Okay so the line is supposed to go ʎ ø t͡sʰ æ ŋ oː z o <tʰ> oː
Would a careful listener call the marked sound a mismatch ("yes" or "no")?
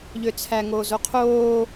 yes